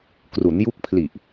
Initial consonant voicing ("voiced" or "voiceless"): voiceless